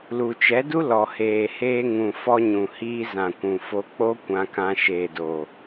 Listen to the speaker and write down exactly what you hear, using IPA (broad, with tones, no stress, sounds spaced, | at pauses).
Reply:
l u˨ t͡ʃ ɛ˨˦ d u˦ l ɔ˨ h eː˨ h eː˧ ŋ ũ˨ f ɔ˧ ɲ ũ˨ h iː˧ z ã˨ kʷ ũ˨ f o˧ k͡p o˦ kʷ ã˧ k ã˧ ʃ eː˨ d o˨